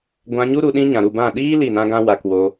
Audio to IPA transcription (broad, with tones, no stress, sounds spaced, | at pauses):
ɡʷ ã˧ ɲ u˦ ɾ u˧ ɗ ĩ˦ ɲ ã˨ ɾ u˦˨ b ã˦˨ ɗ iː˦ l i˦˨ n ã˦ ɡ ã˦ w a˨ k w o˧